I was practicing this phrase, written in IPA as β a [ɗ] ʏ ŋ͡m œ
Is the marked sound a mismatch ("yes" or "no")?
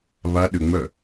no